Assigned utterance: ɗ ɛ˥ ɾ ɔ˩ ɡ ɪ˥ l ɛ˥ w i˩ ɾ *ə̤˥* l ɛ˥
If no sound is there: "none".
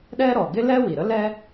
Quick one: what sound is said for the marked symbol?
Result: ə˥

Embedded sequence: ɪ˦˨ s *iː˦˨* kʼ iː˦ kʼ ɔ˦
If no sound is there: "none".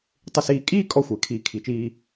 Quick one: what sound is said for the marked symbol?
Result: iː˧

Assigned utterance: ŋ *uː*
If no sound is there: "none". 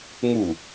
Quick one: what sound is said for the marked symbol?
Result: u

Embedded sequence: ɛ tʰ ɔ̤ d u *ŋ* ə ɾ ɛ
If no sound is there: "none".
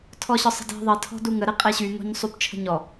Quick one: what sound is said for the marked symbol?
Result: ŋ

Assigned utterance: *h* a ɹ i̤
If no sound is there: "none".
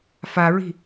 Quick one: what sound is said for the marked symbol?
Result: f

